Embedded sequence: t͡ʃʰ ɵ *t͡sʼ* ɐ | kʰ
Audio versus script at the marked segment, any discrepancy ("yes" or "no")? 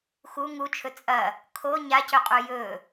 no